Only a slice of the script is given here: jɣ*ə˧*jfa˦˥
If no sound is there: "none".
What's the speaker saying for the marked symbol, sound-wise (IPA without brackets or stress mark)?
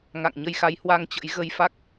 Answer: ə˧